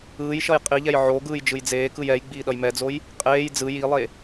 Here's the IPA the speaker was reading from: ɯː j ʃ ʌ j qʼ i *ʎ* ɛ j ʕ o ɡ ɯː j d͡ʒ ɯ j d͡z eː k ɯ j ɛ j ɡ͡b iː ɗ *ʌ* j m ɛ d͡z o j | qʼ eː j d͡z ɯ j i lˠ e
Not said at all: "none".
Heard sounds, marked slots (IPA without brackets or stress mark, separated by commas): ʎ, ʌ